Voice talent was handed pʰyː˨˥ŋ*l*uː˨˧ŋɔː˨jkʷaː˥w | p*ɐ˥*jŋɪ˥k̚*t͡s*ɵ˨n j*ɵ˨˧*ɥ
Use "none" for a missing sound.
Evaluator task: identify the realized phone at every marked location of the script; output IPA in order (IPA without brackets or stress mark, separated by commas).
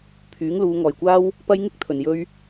l, ɐ˥, t̪ʰ, ɵ˧